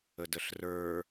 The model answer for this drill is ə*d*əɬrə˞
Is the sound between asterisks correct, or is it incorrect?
correct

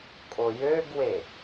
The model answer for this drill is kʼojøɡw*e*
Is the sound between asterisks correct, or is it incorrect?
correct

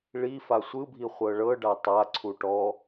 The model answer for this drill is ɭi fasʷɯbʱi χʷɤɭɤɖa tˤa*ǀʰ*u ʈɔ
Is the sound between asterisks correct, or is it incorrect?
correct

